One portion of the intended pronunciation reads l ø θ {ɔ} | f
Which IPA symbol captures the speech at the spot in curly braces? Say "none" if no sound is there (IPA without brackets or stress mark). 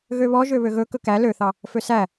ɑ